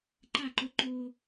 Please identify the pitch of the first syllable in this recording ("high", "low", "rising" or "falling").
falling